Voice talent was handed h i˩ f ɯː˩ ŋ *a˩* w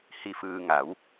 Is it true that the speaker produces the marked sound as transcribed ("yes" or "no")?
no